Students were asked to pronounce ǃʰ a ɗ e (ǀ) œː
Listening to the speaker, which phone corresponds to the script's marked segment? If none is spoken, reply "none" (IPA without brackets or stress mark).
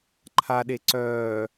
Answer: ǀ